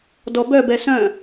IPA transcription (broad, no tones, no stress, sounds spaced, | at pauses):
d ɔ b œ b ɛ s œ̃